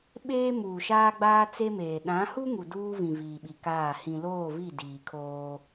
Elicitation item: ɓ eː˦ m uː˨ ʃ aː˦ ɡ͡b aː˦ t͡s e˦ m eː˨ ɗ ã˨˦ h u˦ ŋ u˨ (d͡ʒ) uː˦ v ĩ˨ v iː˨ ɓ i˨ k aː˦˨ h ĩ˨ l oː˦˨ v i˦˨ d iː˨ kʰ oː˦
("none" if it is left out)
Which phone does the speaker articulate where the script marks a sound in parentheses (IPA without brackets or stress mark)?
d